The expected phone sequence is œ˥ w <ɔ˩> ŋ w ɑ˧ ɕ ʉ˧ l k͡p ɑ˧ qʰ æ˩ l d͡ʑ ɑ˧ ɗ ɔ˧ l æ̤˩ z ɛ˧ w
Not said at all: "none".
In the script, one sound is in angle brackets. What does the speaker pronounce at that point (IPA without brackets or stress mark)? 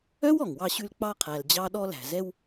ɔ˩